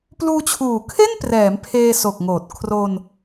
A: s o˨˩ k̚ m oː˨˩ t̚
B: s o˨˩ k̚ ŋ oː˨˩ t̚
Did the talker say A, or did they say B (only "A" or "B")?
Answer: B